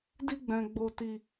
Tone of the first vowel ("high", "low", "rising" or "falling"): high